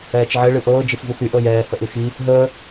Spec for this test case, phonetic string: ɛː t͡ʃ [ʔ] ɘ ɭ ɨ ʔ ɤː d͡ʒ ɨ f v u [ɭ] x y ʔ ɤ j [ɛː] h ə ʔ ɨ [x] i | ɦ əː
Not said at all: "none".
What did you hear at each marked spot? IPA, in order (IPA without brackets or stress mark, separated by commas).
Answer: ʕ, none, ɛː, x